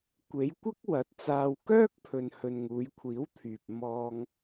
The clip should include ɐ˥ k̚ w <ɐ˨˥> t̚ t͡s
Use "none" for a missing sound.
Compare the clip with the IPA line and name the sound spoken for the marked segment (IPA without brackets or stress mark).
ɐ˨˥